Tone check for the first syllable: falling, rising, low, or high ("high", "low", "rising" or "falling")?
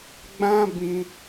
high